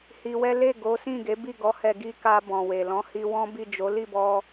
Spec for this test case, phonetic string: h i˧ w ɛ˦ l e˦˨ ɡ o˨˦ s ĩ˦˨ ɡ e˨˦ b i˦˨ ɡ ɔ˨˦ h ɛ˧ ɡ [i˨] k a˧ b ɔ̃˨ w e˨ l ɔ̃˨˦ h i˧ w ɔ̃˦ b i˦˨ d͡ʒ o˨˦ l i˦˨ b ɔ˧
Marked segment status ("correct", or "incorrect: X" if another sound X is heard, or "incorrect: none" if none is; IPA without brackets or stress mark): incorrect: i˦